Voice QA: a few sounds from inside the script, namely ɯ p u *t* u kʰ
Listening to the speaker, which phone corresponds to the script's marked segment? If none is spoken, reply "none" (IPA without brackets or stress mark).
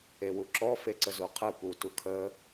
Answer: t